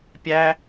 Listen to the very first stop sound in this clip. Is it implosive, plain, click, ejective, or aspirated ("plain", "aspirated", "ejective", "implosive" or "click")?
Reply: plain